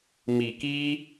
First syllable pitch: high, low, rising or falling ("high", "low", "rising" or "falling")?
low